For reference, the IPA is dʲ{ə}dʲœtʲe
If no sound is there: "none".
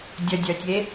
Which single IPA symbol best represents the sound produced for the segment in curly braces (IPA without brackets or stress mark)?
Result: ə